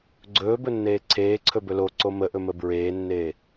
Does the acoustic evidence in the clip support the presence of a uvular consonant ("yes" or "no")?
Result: no